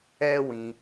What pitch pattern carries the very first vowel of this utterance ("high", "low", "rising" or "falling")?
high